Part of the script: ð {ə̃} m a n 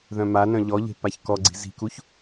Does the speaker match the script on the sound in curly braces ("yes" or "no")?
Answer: no